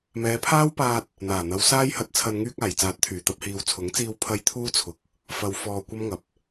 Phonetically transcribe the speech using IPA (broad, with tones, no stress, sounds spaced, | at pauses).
m ɛː˨˧ pʰ aː˥ w p aː˧ t̚ | n̪ aː˨˩ n̪ ɐ˨˧ w s aː˥ j h ɐ˧ t̚ t͡sʰ ɐ˧ n ŋ yː˧ k̚ aː˨˩ j t͡s aː˨˥ t̚ t̪ʰ yː˨˩ t̪ ɐ˧ p̚ h iː˨ w t͡sʰ ʊ˨˥ ŋ t͡s iː˧ w pʰ ɐ˧ j t̪ʰ uː˥ t͡sʰ ʊ˨ k̚ | f ɐ˧ w f ɔː˧ kʷ ɐ˥ m ŋ ɐ˨˥ p̚